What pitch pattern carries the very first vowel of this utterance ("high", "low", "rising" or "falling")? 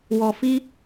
low